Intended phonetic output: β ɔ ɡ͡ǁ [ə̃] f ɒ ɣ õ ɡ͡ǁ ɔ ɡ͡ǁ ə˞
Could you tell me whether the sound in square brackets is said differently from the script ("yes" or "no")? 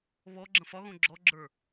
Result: no